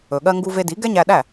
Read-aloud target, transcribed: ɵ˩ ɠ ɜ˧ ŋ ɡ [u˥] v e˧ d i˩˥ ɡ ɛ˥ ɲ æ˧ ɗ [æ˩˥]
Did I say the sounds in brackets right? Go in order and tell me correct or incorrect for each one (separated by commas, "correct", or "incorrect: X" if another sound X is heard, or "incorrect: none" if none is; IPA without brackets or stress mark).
incorrect: u˧, incorrect: æ˥˩